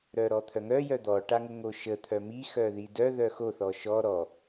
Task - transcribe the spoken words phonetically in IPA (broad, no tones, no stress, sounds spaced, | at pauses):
ɾ œ ɾ ɔ t̪ʰ œ ŋ œ j œ d̪ ɔ ʈ a ŋ ə ŋ o ʃ ə t̪ʰ œ m i x œ ð i d œ ð œ x o θ ɔ ʃ ɔ ɾ ɔ